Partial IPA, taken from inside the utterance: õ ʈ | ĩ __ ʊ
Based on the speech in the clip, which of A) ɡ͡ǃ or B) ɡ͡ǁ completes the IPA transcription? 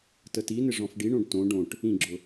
B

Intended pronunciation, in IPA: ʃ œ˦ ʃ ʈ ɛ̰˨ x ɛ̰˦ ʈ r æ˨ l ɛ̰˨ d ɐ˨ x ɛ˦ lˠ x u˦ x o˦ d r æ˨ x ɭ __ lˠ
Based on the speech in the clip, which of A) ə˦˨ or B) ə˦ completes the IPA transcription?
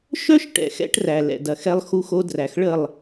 A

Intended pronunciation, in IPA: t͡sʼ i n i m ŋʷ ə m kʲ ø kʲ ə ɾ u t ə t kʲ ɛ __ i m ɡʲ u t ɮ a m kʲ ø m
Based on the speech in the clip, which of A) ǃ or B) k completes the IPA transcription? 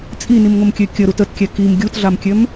B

